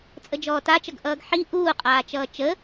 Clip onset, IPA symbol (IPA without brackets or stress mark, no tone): t͡sʼ